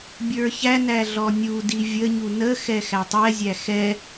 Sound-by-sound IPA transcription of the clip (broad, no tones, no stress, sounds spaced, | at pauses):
bʲ ə˞ ç æ n æ ɮ ɔ nʲ u d i vʲ ə ɲ u n ə x ɛ x æ tˤ ɛ zʲ æ x ɛ